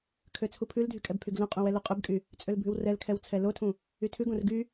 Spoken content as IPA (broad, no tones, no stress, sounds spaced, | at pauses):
kʰ ø t͡sʰ u pʰ ʉ l dʱ y kʼ ɛ b pʰ y ɡ l ũ qʼ ũ w ɛ l u qʼ ʉ b kʼ y | t͡sʼ ø l bʱ ʉ w r ɛ l kʰ ɛ w t͡sʰ ɛ l o tʰ ũ | y tʰ ʉ ɡ õ r ɡ y